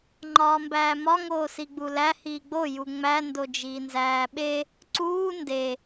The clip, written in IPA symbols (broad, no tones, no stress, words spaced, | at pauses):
ŋ͡ǃɒːmbæːmɒ ŋoːsiɡ͡bulæ hiːɡ͡bo juŋ͡mæ ndod͡ʒiːnzæːɓe | ǀuː nde